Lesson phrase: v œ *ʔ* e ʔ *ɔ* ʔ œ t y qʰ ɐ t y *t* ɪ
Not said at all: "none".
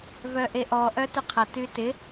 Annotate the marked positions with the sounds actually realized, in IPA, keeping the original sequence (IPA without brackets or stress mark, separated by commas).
ʔ, ɔ, t